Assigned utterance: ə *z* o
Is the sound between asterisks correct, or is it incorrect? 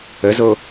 correct